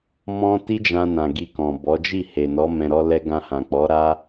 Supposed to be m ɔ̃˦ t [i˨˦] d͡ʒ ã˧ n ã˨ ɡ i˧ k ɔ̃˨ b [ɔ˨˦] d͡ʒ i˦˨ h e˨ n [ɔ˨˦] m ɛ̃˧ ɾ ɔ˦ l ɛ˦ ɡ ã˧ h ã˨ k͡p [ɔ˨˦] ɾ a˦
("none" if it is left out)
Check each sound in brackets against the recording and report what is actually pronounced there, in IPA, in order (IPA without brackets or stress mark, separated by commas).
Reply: i˦, ɔ˨˦, ɔ˨˦, ɔ˨˦